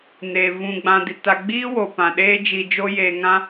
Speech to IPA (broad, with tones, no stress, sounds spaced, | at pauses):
n eː˨ v ũ˨ ɡ͡b ã˨ d i˨ t a˨ ɡ͡b iː˦ w o˨ p ã˨ ɗ eː˦ d͡ʒ i˧ d͡ʒ o˦ j eː˨ ŋ ã˦